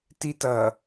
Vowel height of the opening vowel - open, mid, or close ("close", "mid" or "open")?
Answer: close